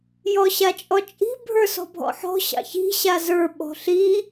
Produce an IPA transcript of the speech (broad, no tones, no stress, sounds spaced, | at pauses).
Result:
j ɔ ɕ a t͡ʃʼ ɔ t͡ʃʼ i̤ bʱ ə˞ s ɔ̤ bʱ ɔ̰ ħ ɔ̤ ɕ ɑ̰ ç i̤ ɕ a z ə˞ ɓ ɔ̤ ɬ i